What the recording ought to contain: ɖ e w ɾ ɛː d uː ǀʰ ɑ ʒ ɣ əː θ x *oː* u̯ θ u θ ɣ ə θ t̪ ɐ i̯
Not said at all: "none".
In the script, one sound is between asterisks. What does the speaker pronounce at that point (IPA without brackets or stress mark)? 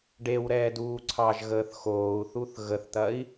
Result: oː